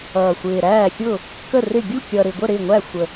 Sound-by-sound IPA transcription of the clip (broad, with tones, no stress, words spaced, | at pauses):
ʌː˨˩xʷɪː˨˩ɾæː˥˩xʲʊ˥˩ | kə˥˩rɪ˥˩ ɡʲu˥˩kʲʌ˨˩ɾɪ˨˩ɡʷə˥˩ ɾɪ˥˩ŋʷæ˥˩xʷə˨˩